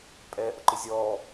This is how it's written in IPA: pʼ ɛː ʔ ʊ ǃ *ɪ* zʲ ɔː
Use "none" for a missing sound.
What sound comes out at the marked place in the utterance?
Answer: ɪ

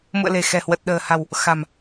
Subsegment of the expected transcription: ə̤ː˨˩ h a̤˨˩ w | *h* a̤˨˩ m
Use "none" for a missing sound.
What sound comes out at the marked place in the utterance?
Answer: x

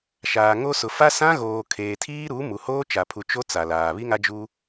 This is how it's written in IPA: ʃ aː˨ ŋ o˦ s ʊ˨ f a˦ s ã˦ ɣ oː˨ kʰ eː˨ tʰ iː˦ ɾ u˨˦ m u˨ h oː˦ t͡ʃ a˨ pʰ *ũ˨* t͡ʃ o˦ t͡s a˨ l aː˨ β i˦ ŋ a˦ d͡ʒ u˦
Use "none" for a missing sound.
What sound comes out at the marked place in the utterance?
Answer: u˨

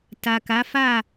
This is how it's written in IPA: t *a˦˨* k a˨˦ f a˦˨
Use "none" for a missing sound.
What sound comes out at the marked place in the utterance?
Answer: a˨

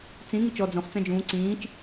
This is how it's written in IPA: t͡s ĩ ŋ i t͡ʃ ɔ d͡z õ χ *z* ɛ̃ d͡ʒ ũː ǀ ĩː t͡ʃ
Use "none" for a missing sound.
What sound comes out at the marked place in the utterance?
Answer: t͡s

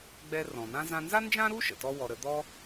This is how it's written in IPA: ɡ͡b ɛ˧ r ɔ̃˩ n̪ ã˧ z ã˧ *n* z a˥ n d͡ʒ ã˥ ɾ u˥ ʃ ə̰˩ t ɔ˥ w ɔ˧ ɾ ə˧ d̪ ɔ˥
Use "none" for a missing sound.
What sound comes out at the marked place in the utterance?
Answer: n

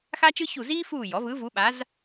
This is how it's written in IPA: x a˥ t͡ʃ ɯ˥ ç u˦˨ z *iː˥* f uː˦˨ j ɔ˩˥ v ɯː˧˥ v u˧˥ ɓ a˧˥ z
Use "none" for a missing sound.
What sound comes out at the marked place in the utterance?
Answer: iː˥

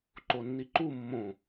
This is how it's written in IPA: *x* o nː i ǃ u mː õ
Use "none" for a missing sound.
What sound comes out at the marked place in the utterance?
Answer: ǃ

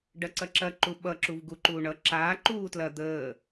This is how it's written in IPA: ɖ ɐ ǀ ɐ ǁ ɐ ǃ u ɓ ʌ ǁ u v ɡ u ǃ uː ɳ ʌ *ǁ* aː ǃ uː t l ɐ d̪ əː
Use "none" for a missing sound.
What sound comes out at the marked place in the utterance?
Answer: ǁ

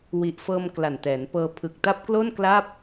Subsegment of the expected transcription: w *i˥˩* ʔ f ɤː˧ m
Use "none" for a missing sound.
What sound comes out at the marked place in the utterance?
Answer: i˨˩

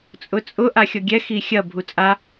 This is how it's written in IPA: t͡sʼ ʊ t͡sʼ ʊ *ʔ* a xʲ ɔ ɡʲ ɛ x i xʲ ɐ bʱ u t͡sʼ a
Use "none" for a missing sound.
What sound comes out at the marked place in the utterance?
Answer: ʔ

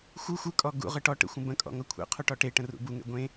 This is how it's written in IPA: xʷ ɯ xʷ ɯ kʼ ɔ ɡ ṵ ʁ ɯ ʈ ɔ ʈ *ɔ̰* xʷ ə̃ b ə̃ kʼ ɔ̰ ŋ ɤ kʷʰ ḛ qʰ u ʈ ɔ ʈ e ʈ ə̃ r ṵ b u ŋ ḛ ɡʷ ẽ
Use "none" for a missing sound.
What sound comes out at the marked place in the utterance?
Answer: ə̰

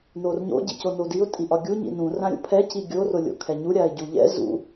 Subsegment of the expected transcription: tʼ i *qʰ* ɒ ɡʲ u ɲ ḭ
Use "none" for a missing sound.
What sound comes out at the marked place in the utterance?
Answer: ʔ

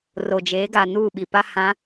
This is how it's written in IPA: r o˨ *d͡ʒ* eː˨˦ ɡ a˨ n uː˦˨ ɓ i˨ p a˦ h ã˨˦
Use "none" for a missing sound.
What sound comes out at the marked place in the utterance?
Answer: d͡ʒ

